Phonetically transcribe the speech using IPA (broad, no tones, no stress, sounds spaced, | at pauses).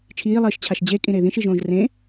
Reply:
t͡ʃʰ iː lˠ iː ʃ t͡ɕʰ a ʃ d͡ʑ e kʼ ĩ ɾ e ð ĩ ʃ i ʒ õː ʒ r ẽ